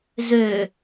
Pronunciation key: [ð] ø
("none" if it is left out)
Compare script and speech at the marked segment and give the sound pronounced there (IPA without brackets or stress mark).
z